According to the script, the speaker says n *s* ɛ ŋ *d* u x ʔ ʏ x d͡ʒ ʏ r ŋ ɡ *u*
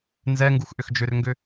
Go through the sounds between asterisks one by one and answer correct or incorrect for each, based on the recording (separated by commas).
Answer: incorrect, incorrect, incorrect